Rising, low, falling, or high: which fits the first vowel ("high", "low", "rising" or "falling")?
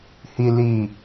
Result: low